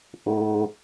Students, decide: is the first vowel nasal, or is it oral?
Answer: oral